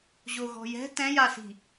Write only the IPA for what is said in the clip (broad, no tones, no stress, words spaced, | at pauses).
ʑoɣɔ̤jɛ̤ tɛ̃jasi̤